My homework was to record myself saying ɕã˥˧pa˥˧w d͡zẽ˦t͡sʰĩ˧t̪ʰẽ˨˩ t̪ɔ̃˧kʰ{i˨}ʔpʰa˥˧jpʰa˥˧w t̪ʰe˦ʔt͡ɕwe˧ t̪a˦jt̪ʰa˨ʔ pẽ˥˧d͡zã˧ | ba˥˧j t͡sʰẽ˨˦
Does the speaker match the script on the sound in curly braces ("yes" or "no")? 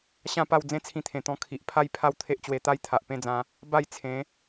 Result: yes